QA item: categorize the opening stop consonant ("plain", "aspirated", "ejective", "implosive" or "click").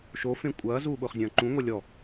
ejective